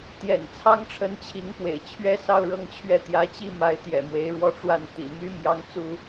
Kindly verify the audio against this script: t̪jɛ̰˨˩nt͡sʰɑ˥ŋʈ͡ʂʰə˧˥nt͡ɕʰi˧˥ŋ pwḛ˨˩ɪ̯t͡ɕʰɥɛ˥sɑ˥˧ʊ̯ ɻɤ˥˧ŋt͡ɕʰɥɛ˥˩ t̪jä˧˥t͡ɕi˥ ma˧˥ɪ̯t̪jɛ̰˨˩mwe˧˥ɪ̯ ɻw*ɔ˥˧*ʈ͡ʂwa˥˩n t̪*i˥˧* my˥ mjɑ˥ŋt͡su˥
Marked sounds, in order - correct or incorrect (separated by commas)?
correct, incorrect